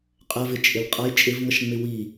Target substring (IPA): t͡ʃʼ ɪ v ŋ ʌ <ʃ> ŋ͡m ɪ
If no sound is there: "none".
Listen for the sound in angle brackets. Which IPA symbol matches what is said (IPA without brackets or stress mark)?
ʃ